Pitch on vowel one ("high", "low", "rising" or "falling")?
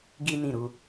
high